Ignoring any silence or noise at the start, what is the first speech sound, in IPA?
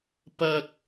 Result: p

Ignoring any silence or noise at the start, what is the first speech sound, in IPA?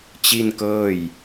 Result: t͡ɕ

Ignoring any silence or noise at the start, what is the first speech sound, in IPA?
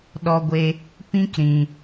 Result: ɗ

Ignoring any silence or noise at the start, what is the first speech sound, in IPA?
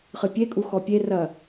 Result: χ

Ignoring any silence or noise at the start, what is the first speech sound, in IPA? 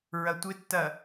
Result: ɹ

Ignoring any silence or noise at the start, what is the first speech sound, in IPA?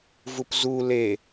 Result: v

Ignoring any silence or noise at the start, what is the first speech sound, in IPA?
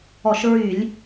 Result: ɔ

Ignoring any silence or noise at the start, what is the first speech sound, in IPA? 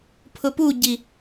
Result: pʰ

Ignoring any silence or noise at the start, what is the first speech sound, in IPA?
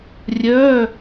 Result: rʲ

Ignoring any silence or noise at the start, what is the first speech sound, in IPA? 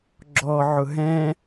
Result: ɡ͡ǁ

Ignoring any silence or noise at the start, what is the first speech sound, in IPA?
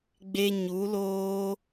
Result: ɡ͡b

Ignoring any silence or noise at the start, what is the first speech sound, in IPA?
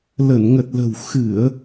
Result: l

